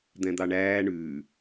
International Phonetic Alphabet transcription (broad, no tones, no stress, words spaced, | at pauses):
d̪ɛ̃d̪ɑɳæː ɳʉː